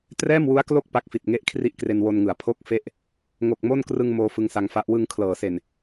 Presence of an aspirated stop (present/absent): present